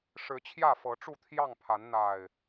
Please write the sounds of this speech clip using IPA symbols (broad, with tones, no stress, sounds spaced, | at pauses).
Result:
ʂ ɻ̩˨˦ t͡ɕʰ j ä˥˨ f ɤ˨˦ ʈ͡ʂ u˥˨ t̪ʰ j ɑ˥˨ ŋ pʰ a˨˦ n n̪ a˨˩ ɪ̯